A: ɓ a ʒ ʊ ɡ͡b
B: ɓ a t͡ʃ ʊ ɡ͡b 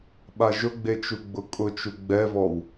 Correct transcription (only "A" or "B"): A